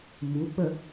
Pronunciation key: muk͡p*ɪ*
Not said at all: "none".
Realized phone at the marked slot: ə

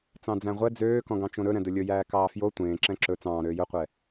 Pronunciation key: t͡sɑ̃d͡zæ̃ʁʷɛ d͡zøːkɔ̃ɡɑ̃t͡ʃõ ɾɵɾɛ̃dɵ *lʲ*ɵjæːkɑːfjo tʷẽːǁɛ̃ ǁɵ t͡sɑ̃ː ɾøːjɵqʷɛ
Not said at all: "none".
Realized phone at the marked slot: lʲ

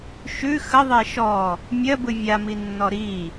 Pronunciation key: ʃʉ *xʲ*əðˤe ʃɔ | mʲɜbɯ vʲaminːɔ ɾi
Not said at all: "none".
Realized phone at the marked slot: x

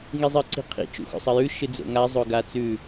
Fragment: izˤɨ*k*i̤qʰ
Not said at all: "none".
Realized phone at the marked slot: ǀ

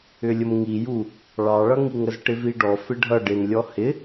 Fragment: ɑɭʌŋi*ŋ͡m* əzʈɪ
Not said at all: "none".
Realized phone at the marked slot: ŋ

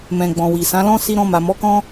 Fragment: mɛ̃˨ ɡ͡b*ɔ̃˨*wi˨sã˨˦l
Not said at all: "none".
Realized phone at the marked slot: ɔ̃˨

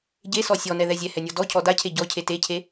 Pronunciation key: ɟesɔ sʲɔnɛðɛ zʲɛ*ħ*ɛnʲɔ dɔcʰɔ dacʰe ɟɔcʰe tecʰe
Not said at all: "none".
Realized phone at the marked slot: h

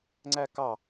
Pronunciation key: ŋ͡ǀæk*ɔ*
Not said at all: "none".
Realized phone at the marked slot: ɑ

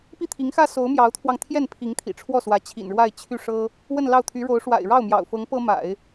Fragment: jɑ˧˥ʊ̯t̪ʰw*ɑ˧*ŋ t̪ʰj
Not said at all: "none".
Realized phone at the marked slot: ɑ˧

